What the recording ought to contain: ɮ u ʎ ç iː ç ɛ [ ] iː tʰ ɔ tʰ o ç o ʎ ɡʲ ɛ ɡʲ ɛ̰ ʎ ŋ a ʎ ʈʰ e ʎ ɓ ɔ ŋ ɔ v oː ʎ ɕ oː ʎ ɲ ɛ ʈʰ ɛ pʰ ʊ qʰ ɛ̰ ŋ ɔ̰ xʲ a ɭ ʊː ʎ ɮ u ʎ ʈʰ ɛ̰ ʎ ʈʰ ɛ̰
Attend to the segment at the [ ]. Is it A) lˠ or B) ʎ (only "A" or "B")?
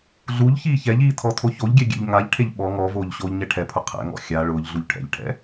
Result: B